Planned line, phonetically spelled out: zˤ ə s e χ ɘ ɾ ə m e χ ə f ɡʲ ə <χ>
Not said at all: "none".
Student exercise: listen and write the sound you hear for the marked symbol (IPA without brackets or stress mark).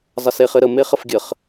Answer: χ